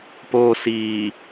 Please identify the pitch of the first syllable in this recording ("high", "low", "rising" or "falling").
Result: low